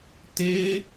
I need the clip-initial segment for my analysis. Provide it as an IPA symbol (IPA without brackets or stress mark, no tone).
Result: t